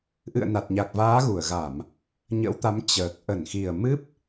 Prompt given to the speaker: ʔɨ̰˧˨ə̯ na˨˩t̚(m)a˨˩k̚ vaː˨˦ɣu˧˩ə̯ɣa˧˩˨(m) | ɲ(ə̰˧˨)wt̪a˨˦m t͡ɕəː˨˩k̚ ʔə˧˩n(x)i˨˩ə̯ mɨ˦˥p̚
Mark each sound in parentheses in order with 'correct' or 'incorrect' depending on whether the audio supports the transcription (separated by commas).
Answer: incorrect, correct, incorrect, correct